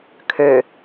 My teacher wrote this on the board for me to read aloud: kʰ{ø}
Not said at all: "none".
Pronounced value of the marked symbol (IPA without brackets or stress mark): ø